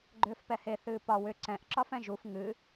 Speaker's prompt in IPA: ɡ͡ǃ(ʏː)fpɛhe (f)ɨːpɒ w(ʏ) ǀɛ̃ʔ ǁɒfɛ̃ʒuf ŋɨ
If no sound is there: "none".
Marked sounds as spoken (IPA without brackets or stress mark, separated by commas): ʏː, θ, ʏ